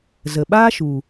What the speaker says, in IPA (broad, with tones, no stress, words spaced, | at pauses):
zə˨ ɓaː˦ʃu˨